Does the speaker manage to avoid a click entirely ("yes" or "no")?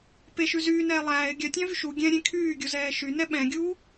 yes